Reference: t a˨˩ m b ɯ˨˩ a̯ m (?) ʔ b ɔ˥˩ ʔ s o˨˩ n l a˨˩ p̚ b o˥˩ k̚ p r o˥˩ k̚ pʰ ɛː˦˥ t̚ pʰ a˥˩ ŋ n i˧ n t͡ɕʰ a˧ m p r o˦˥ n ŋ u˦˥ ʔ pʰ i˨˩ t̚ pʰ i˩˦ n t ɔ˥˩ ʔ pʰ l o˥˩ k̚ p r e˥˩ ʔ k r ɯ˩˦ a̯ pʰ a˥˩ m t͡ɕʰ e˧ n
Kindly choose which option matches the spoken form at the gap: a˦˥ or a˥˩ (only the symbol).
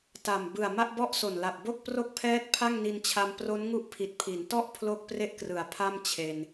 a˥˩